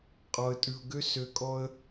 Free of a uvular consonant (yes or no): no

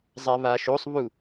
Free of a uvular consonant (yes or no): yes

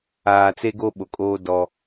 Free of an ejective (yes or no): no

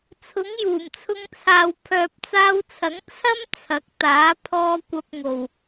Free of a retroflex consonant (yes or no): yes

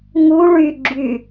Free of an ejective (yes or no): yes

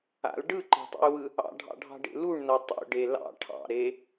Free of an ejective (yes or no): yes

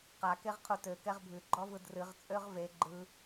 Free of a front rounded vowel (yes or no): no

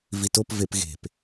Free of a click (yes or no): yes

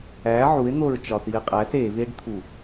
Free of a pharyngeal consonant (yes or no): no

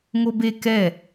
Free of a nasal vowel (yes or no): yes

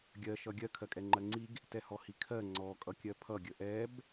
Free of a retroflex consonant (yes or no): yes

